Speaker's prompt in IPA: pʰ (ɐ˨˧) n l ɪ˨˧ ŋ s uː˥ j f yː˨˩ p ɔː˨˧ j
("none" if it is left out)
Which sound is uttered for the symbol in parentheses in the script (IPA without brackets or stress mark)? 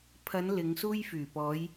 ɐ˨˧